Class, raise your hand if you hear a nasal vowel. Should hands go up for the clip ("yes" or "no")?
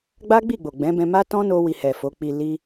yes